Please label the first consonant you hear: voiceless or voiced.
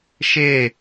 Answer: voiceless